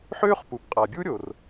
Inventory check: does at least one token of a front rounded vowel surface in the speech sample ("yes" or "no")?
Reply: yes